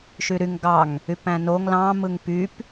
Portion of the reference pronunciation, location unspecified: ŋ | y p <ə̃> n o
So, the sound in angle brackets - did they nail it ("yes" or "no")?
no